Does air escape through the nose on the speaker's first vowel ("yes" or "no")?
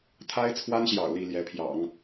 no